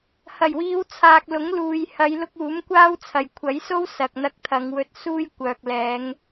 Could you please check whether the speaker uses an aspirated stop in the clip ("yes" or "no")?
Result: yes